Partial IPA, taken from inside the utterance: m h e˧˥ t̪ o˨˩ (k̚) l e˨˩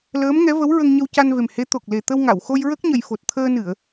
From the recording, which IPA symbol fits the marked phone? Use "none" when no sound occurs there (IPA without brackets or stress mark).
k̚